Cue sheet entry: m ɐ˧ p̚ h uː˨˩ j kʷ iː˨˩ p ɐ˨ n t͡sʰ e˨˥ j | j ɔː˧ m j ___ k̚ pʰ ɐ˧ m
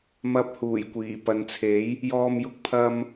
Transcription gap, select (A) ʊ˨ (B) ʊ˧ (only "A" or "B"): B